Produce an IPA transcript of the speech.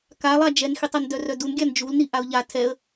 k a lˠ a d͡ʒ ɛ n x i tˤ a n d œ r œ d u n ɡʲ a n d͡ʒ u l n i ʔ a ʊ̯ ʎ a tʰ ɛ ə̯

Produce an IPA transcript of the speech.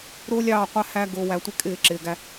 ɾ ʊː˦ lʲ ɑː˦˨ qʷ æ˦ h æ˦ ɡ ʊː˨ w æ˨ tʷ ɪ˦ kʼ ɪː˦˨ ǁ ɪː˨ ɡ æ˦

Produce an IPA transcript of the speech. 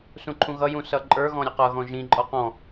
s ũ ǃʰ ũ ɣ ʌ j ũ s ʌ ǃʼ ə˞ ɣ ɔ̃ ɾʲ ʌ q ʌ ɣ ɔ̃ ʒ ĩ ǃʼ ɔ q ɔ̃

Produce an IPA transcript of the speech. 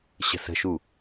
ɕ ə̤ s ə̤ ʃ u

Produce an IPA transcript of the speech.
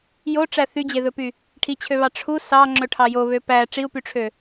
j o ʈ͡ʂ æ θ y d͡ʑ e ð ɵ p y | ʈʰ i t͡ɕʰ ø β ɑ ʈ͡ʂʰ u s ɑ ŋ͡ǁ ɵ ʈʰ ɑ j o β ø p æ ʈ͡ʂ i u̯ p y ʈ͡ʂʰ ø

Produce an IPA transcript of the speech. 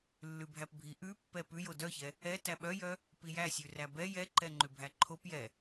lː ʉ bʱ æ p bʱ i ʔ ʉ pː ɛ p ʉ j o d œ ç ɛ | ɛ t æ ɓ œ j œ | p i j æ sʲ ʉ r æ b ɛ j ɛ ǃ ɛ ŋ͡ǃ ʉ bʱ æ ǃʰ o p j ɛ

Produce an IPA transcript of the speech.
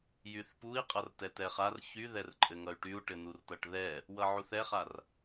j y θ p u i̯ qʼ ʌ r t ɛ t ɛ χ a r ç y ð ɛ r ǃʼ ɘ ŋ ʌ y̯ ʈ y u̯ ʈ ɘ n u r t ʌ ʈ ð ɛ | w ʌ ʕ u θ ɛ χ a r

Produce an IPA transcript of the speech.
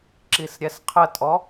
ǁ i s ɾʲ ɛ s qʰ ə tʼ ɔ

